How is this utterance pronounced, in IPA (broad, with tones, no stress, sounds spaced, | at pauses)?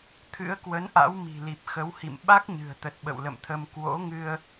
t̪ʰ ɨ̰˧˥ ə̯ k w ə˨˦ n ʔ a̰˧˥ w m i̤˨˩ l i˨˩ p̚ x ə˨˦ w h ḭ˧˨ m ɓ a˦˥ k̚ ɲ ɨ̤˨˩ ə̯ t̪ ə˨˩ t̚ ɓ ə̰˧˨ w l ə̰˧˨ m t̪ʰ ə˧ m k w o̰˧˥ ŋ ɨ˧ ə̯